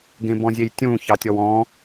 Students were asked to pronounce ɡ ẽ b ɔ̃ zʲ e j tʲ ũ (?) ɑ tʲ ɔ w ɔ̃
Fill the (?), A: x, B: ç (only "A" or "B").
B